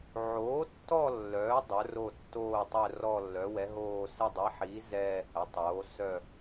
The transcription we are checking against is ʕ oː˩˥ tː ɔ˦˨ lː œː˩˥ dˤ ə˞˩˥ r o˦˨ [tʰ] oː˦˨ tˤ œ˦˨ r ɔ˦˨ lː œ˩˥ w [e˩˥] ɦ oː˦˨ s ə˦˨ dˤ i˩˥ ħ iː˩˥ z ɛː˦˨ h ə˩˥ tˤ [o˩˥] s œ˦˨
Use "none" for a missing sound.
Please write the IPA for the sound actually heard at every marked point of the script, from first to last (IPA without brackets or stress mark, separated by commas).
tː, ɛ˩˥, oː˩˥